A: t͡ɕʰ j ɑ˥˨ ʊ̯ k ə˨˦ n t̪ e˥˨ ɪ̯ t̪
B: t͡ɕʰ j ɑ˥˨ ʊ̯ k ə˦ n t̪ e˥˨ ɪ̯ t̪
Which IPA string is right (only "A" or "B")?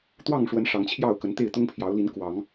A